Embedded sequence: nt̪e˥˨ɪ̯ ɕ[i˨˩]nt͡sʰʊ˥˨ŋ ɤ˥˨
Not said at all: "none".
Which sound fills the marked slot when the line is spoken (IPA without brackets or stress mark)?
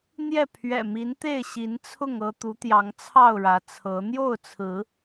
i˨˦